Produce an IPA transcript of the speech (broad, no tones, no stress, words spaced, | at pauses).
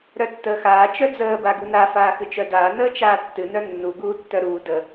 ɾœtːəːxaː t͡ʃœd͡zəː baɡuna faːxɨt͡ʃœdaː nəːt͡ʃaːtːɨ nœnːu ɡuːtːœɾuː də